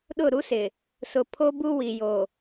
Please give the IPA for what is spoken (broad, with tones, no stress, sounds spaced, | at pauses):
ɗ ʊ˦˨ ɾ u˦ s ɪ˨ | s ʊ˨ pʰ o˦ b u˦ w i˨ j o˨